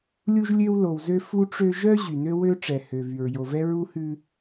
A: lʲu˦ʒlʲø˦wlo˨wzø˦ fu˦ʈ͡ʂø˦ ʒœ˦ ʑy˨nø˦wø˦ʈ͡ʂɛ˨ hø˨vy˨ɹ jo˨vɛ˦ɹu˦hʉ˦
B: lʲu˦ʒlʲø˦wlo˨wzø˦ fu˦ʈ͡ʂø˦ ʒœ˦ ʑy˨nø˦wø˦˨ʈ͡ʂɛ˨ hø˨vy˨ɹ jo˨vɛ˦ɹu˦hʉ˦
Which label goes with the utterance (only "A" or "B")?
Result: A